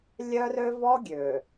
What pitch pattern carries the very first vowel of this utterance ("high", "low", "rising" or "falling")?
high